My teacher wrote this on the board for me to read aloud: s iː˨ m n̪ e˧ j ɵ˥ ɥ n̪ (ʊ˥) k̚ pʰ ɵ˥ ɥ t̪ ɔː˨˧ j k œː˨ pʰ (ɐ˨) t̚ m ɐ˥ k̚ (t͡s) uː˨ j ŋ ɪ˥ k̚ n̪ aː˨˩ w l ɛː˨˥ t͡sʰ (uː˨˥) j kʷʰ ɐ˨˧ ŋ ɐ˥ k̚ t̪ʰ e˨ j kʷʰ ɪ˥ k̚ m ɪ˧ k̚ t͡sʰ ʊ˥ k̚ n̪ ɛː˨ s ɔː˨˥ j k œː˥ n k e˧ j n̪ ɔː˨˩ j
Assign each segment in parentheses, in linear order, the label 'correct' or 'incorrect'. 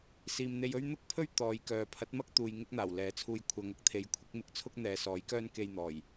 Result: correct, incorrect: ɐ˨˥, incorrect: t̪, incorrect: uː˧

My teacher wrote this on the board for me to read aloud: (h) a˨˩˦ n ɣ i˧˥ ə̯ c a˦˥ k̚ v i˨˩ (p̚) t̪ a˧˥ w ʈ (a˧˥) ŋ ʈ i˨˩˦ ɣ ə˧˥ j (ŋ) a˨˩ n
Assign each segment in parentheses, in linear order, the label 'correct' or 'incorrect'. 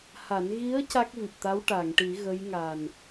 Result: correct, correct, incorrect: a˨˩˨, correct

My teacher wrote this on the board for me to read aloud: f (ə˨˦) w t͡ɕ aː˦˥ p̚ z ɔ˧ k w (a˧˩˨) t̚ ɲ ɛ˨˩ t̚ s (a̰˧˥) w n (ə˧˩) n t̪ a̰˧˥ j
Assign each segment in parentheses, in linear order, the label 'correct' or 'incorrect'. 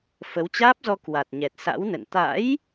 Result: correct, incorrect: a˨˩, correct, incorrect: ə̰˧˨

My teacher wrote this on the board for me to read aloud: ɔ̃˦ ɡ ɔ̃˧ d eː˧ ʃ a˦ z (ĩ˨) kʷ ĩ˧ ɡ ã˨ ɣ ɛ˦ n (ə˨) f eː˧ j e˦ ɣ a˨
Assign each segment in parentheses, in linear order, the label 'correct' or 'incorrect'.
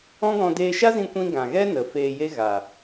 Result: incorrect: ĩ˧, correct

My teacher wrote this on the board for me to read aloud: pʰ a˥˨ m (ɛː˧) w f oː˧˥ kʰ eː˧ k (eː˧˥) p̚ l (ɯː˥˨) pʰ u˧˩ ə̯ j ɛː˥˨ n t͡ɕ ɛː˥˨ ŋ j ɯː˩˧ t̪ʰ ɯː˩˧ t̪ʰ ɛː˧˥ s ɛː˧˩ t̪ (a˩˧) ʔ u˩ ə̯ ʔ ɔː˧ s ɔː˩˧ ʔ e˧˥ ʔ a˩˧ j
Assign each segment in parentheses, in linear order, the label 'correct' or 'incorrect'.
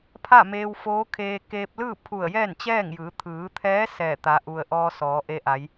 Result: incorrect: eː˧, incorrect: eː˧, correct, correct

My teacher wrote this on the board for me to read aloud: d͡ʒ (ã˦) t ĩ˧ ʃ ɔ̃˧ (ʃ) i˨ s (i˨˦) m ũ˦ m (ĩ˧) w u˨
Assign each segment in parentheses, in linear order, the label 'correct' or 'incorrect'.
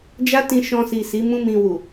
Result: incorrect: a˦, incorrect: s, correct, correct

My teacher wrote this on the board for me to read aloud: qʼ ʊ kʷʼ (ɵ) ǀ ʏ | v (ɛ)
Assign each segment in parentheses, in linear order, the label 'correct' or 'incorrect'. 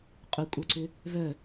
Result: incorrect: œ, incorrect: œ

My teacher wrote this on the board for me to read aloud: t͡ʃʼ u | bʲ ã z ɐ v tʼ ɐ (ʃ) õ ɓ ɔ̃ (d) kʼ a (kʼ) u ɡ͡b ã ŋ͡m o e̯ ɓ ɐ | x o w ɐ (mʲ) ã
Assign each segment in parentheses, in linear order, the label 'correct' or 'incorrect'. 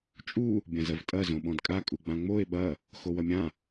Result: incorrect: z, correct, correct, correct

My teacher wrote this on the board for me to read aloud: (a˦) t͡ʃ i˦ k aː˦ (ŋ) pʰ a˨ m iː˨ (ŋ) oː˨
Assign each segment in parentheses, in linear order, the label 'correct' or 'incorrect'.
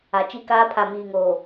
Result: incorrect: a˨, incorrect: none, correct

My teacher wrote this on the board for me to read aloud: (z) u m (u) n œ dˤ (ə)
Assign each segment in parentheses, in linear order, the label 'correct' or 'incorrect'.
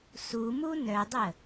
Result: incorrect: s, correct, correct

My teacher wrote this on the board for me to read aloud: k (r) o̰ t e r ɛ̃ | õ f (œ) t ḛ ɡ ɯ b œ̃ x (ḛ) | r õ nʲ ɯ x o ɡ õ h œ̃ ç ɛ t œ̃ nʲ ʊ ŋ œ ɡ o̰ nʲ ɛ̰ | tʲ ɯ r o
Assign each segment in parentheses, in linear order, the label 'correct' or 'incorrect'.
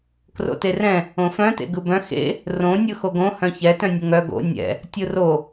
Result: correct, incorrect: œ̃, correct

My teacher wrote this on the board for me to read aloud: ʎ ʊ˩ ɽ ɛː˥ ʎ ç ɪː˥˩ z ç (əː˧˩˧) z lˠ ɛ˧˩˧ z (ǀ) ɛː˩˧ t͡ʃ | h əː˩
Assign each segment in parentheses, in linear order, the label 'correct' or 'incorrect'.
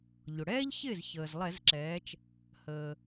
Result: incorrect: əː˩, incorrect: ǁ

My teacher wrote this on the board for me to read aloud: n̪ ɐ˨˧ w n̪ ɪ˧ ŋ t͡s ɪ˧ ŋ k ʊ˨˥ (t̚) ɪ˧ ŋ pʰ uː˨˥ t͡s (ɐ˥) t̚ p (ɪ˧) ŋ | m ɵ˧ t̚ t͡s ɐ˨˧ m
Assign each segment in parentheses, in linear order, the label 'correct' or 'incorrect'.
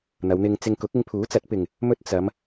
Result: incorrect: k̚, incorrect: ɐ˨˥, incorrect: ɪ˨

